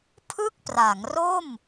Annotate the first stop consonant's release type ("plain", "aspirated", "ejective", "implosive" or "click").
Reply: aspirated